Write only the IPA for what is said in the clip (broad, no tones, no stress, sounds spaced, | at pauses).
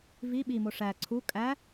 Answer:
v i ɓ i m o ʂ æ ǀʰ u kʼ æ